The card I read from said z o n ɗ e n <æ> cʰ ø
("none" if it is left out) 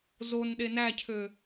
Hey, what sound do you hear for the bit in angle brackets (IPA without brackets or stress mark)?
æ